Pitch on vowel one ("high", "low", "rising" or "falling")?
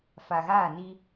low